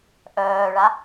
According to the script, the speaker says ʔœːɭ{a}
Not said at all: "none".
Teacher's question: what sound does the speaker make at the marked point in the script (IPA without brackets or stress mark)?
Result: a